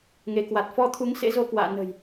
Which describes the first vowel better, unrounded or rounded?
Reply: unrounded